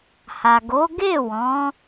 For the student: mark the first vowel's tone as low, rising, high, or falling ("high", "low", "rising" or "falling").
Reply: low